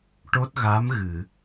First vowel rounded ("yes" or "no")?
yes